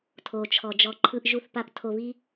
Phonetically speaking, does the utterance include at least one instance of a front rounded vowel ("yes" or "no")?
no